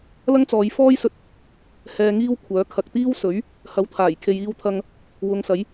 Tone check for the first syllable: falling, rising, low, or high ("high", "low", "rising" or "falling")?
high